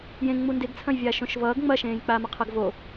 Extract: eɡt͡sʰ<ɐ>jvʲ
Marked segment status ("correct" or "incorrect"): incorrect